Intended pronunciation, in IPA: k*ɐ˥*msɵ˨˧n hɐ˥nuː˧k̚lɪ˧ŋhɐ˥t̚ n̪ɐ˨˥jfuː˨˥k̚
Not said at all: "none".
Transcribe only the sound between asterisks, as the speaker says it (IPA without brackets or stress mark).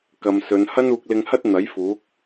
ɐ˨